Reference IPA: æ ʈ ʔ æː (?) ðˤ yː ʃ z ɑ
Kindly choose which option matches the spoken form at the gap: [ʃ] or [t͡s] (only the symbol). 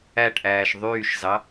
ʃ